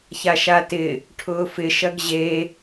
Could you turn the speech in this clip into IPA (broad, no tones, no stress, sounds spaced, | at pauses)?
ç a ʃ a t ɪ | ʈʰ ʊː f ɪ ʃ ɐ ɡ ʑ e